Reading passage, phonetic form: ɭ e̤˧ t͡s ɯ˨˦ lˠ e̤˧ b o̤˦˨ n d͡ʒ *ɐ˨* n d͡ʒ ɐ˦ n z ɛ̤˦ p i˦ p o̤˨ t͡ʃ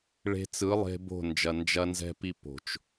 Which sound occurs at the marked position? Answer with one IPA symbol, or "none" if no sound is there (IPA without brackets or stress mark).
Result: ɐ˨